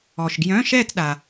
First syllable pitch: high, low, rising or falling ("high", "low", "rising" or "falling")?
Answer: low